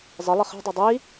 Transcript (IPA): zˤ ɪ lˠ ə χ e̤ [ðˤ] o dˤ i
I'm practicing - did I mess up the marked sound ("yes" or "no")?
yes